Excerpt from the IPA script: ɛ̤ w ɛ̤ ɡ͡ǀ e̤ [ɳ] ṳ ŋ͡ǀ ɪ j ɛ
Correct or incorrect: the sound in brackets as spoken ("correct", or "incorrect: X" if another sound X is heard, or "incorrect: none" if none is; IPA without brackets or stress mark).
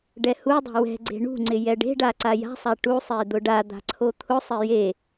correct